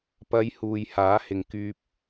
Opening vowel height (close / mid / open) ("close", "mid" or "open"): open